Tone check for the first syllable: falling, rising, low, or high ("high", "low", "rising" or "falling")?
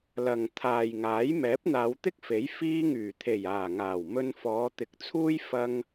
low